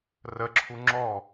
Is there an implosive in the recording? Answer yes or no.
no